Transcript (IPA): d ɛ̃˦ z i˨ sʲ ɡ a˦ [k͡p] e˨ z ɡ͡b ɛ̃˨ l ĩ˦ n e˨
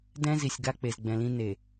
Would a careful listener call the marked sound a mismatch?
no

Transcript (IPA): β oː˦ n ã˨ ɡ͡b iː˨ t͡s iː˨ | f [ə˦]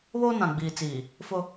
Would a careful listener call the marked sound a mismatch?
yes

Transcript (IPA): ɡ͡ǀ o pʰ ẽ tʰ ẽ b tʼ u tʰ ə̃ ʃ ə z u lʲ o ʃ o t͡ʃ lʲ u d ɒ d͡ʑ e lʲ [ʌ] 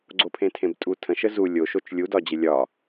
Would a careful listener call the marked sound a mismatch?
yes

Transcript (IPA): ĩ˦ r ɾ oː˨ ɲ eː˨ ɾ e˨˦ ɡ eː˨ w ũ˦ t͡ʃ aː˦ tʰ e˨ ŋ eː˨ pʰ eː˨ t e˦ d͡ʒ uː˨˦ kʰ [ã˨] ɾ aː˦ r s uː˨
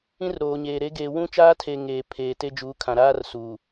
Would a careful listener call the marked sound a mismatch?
no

